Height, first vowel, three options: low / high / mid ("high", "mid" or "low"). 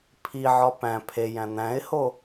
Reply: high